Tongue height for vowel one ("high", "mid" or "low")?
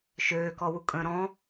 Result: mid